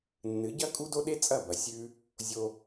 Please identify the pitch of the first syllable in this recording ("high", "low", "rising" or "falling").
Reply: rising